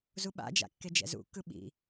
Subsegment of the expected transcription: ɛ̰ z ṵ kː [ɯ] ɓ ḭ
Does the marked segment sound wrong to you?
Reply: no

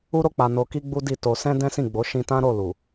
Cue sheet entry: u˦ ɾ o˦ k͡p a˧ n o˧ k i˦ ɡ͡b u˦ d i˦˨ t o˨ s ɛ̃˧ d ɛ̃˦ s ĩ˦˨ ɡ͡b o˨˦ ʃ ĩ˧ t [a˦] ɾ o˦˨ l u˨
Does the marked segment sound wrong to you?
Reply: yes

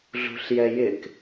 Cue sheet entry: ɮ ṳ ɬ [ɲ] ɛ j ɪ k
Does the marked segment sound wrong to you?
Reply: yes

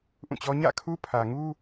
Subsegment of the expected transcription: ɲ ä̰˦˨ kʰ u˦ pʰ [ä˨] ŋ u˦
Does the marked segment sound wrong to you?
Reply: no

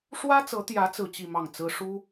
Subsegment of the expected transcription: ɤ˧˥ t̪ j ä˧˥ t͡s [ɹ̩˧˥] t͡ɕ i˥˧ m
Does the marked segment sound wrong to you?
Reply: yes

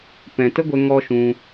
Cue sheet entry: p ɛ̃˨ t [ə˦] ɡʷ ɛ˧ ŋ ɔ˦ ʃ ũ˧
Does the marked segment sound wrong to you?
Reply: no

